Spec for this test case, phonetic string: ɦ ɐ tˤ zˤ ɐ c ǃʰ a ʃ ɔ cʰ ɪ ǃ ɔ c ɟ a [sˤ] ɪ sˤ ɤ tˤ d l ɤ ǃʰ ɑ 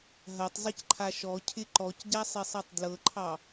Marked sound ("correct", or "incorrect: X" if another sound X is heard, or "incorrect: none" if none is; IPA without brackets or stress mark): correct